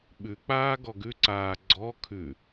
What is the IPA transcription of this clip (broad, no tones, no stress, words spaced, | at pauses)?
ɓʉk͡paː ɡɔɡʉǀaː ɡ͡ǀɔ kʰʉ